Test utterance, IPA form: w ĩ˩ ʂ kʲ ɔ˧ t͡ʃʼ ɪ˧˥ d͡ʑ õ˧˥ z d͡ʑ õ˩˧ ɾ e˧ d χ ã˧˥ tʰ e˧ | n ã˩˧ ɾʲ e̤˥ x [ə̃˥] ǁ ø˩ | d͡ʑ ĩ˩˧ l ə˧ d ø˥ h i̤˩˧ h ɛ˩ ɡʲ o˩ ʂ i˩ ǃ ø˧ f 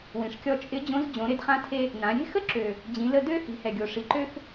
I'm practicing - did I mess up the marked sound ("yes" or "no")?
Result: yes